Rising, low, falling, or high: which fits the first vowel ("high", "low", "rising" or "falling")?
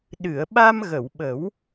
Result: low